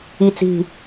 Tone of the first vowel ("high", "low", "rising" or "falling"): low